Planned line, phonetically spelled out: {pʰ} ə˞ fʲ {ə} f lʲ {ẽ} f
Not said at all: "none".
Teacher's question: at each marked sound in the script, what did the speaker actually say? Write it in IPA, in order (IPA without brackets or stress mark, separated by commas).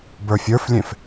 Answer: b, ə˞, ẽ